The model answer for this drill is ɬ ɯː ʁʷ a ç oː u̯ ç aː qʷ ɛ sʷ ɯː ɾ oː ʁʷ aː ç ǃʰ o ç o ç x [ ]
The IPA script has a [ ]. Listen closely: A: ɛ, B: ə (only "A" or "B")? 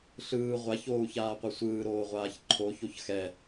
A